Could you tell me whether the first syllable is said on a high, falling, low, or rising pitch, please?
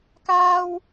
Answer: high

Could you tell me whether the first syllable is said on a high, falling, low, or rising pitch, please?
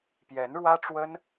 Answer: rising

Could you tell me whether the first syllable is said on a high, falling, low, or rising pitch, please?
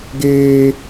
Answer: high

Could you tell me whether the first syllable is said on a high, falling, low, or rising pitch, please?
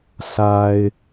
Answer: low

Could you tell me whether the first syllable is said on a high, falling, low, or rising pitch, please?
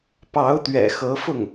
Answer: rising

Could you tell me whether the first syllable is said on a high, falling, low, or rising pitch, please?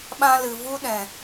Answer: high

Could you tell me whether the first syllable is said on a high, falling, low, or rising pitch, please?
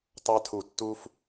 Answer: high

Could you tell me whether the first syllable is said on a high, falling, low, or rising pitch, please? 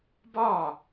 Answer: falling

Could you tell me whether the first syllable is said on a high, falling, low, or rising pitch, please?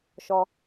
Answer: high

